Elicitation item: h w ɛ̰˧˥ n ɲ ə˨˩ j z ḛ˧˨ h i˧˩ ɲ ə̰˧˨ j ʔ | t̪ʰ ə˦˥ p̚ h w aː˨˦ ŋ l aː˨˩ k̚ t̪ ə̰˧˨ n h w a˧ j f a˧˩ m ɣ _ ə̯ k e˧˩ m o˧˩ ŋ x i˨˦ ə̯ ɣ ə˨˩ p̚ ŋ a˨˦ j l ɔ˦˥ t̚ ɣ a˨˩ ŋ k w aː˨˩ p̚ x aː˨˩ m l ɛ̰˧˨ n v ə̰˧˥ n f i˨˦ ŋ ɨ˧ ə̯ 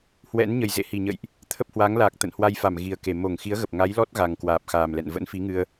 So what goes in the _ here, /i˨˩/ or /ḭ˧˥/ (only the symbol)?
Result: i˨˩